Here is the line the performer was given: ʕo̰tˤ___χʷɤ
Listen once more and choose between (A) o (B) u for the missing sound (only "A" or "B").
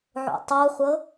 A